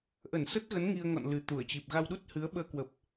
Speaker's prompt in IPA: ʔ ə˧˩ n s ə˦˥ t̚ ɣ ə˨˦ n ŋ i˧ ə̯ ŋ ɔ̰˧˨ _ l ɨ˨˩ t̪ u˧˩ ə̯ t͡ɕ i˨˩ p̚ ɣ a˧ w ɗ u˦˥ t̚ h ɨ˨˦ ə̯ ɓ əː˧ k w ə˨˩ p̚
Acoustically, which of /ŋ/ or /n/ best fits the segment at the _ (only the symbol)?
n